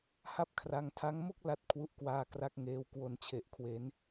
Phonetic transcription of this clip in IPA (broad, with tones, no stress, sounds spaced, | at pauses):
h a˥˩ p̚ kʰ r a˧ ŋ tʰ a˧ ŋ m o˦˥ k̚ l a˥˩ t̚ kʰ w u˦˥ ʔ k w aː˦˥ k r a˦˥ k̚ ŋ eː˧ w k w o˨˩ n t͡ɕʰ e˨˩ ʔ kʰ w e˩˦ n